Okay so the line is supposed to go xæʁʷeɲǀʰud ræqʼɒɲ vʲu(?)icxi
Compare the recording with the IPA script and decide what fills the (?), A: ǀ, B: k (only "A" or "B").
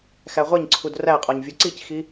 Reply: A